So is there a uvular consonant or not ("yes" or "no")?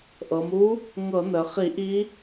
yes